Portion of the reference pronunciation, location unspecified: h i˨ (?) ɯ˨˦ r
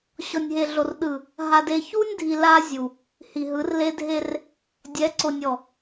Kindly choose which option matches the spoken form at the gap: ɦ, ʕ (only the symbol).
ɦ